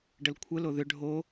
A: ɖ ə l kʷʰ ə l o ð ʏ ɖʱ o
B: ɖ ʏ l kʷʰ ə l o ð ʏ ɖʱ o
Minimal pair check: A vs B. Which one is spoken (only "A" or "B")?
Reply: A